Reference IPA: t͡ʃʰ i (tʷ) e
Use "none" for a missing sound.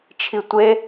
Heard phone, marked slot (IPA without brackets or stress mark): tʷ